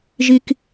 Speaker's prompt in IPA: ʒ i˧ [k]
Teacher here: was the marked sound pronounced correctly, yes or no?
yes